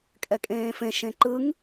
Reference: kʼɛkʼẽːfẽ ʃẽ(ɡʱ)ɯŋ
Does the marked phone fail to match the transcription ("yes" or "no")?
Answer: yes